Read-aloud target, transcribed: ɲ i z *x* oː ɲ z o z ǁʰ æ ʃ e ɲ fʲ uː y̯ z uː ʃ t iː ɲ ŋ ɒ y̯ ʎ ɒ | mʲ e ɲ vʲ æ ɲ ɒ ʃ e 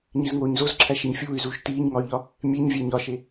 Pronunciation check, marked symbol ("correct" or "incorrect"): incorrect